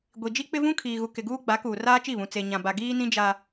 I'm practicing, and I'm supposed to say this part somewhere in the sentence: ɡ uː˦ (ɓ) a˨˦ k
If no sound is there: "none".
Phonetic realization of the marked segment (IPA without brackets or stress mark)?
ɡ͡b